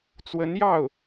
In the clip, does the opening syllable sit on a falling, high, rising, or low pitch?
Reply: rising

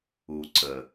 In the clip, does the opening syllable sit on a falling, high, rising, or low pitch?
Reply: low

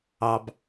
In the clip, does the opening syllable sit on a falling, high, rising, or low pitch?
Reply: low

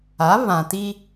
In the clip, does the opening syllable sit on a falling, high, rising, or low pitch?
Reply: rising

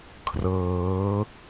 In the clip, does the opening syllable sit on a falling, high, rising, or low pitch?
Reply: rising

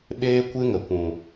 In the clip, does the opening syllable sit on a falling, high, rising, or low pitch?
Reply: high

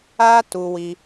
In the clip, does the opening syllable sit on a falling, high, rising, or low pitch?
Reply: high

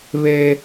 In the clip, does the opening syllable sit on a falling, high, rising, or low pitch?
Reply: high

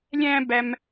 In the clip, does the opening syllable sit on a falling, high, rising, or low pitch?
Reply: high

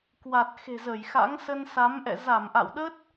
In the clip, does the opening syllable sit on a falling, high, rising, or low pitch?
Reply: low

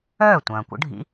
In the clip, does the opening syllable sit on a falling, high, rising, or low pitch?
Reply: falling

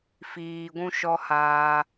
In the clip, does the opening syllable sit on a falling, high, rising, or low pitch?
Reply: low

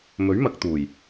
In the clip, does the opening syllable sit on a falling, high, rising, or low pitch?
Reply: rising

